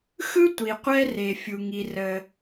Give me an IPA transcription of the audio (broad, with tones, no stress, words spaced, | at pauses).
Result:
xɯ˥tʷi˩ qʷɛ˥re˩fʲu˩ ŋi˩rə˩